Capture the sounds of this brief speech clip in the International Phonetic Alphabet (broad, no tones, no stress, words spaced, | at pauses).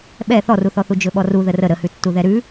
ɓɛ θɔruθɔθu d͡ʒɵɓɔru ðərə ɾəhʉtːu ðɛɾʉ